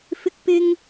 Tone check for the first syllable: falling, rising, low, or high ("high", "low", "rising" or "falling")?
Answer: high